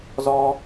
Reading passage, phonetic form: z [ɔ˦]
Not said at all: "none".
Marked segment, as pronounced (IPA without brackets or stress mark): ɔ˦